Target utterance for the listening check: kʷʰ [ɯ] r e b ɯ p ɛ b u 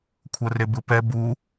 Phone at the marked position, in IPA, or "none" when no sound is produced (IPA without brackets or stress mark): ɤ